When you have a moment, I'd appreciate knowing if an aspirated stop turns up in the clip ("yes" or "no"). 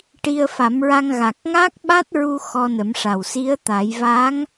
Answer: no